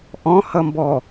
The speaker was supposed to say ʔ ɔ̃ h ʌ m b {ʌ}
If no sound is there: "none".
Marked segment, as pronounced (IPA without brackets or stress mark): ɔ